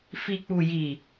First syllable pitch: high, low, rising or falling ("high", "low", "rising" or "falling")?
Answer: low